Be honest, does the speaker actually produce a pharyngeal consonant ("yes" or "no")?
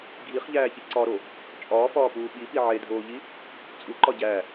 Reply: yes